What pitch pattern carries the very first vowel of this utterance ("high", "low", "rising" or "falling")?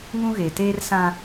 high